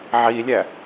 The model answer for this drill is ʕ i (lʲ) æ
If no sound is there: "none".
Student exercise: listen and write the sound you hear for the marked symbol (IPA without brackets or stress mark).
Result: lʲ